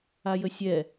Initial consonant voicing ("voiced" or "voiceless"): voiced